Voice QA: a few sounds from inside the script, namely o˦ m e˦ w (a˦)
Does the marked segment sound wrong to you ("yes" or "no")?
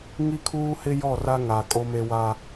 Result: no